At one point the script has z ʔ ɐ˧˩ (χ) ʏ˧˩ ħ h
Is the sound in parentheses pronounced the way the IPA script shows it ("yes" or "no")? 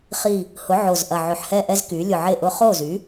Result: no